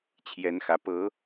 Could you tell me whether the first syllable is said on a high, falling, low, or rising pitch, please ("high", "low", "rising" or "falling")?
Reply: rising